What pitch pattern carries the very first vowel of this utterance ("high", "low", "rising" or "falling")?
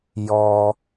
low